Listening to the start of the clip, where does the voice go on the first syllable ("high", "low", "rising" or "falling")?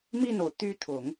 falling